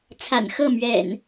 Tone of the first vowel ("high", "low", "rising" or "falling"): low